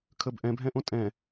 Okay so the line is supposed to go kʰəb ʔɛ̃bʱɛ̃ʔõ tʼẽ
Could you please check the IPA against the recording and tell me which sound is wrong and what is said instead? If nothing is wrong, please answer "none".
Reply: ẽ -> ɛ̃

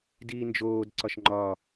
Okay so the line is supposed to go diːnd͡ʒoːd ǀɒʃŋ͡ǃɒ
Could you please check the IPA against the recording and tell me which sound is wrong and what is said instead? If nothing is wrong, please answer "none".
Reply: none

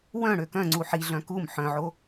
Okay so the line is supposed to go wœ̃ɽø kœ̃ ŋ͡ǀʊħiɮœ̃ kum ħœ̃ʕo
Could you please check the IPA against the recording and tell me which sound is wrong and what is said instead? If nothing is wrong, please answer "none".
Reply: ʊ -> u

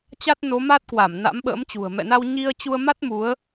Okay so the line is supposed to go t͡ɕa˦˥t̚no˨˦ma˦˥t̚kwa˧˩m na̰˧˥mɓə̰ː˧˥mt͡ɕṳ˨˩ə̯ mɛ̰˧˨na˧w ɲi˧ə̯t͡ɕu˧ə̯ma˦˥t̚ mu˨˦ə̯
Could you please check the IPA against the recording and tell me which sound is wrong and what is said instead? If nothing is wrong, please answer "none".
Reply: none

